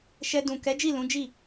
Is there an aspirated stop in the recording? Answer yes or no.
no